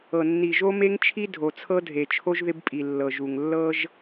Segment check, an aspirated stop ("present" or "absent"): present